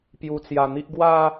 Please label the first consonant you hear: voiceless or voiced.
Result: voiceless